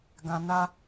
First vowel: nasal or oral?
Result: nasal